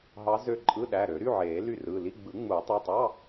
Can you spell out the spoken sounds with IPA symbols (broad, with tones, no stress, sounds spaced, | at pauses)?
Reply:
ɦ ɑ˧˥ z ø˦˨ ǃʼ ɯ˧˥˧ ɗ æ˩˧˩ ɾ ø˨˩˦ ɾ y˧˥˧ ʕ eː˨˩˦ l y˦˨ r ɯː˩˧˩ l i˧˥˧ ɡ͡b ɯ˨˩˦ ŋ͡m u˨˩˦ tˤ i˩˧˩ tˤ ɑ˧˥˧